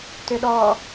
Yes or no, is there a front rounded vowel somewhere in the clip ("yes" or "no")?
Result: yes